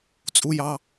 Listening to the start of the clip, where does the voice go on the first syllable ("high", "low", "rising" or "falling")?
high